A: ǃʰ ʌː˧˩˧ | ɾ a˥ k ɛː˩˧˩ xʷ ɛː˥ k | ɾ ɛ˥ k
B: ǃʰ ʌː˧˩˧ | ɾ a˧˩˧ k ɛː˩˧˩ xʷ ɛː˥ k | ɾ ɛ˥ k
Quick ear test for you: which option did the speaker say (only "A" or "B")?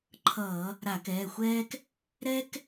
B